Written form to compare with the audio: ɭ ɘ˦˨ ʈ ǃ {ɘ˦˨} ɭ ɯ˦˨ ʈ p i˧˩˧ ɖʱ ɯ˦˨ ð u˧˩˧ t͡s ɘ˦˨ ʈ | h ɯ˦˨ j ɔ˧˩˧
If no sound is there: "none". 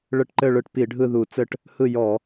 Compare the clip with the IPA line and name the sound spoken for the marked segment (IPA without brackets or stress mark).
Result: ɘ˦˨